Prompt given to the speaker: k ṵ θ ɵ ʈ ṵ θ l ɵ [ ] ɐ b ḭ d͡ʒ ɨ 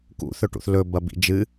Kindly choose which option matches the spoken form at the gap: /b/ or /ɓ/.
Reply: b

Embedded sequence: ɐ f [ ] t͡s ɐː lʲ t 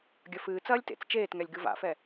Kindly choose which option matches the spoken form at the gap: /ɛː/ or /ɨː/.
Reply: ɨː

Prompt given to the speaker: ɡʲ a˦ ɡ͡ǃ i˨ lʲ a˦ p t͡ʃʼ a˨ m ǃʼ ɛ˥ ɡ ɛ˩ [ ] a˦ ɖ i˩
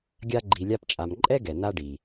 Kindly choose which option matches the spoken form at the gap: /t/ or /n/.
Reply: n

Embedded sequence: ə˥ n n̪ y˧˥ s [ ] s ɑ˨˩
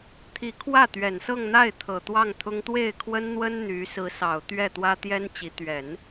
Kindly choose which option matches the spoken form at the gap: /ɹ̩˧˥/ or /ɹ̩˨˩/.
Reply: ɹ̩˧˥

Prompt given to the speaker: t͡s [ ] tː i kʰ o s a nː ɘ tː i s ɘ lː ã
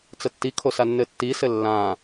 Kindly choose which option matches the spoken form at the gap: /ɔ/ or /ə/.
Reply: ə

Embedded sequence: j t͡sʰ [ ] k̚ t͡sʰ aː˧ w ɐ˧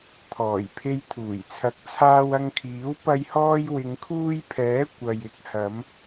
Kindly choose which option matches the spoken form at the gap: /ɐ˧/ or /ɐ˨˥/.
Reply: ɐ˨˥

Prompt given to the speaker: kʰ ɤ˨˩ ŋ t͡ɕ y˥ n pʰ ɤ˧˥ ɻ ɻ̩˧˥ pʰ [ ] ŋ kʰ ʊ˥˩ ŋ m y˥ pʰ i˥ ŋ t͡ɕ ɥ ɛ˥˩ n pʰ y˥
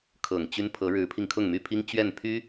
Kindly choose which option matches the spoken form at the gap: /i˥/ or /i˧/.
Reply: i˧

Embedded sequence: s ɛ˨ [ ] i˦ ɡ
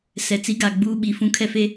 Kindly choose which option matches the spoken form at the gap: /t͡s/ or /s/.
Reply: t͡s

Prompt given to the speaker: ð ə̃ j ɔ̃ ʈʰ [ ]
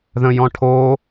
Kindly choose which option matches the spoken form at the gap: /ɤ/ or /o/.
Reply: o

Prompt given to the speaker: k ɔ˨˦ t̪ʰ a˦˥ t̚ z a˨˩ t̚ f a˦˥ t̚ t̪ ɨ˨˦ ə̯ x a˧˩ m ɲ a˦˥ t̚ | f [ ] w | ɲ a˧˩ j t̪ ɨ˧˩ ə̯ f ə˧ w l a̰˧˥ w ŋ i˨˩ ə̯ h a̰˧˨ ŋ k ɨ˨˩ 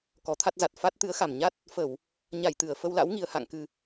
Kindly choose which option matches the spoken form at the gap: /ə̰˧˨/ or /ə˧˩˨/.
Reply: ə˧˩˨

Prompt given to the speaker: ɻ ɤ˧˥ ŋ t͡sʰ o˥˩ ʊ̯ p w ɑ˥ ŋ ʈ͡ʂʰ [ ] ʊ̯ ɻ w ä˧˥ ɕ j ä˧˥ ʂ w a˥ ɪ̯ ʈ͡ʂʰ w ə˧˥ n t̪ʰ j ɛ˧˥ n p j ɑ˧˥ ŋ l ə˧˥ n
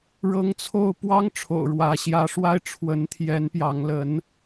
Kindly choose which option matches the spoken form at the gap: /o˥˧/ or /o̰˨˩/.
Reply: o̰˨˩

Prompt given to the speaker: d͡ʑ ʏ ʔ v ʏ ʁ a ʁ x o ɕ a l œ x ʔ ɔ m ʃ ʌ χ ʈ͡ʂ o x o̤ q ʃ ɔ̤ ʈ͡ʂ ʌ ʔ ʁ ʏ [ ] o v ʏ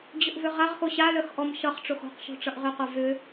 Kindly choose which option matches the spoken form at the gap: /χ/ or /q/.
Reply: q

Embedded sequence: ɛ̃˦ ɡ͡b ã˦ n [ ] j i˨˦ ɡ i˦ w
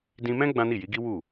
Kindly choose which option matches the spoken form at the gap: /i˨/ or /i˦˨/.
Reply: i˦˨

